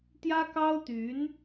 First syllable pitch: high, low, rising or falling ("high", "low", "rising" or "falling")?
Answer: high